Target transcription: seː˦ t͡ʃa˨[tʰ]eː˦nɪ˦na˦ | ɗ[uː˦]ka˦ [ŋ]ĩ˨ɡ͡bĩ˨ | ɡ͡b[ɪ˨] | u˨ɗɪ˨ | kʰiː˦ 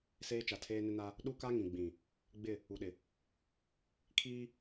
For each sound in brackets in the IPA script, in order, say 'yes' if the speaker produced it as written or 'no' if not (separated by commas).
yes, no, yes, no